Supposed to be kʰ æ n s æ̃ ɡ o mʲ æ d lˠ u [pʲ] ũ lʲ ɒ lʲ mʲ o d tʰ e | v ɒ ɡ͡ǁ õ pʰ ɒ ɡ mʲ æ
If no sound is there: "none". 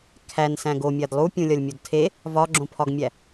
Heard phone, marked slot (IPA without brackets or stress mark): pʲ